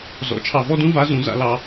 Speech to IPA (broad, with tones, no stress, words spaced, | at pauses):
zɔ̰˨˩˦ t͡ʃʰɑ˨vɔ˥dũ˥ va˧˥zũ˨˩˦ za̰˨lɑ˨